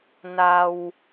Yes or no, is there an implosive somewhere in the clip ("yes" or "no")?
no